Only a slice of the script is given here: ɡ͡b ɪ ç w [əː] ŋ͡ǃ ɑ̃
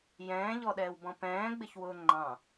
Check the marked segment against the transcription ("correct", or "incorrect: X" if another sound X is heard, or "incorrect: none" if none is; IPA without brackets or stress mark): incorrect: ʊː